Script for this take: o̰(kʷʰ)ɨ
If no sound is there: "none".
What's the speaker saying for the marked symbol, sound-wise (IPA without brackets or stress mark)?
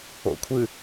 kʷʰ